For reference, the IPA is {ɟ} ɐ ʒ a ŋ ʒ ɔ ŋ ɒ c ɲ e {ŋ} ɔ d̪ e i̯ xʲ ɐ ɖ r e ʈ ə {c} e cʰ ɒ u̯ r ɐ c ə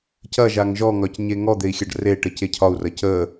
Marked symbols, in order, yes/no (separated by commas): no, yes, yes